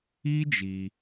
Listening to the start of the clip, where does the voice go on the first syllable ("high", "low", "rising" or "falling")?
high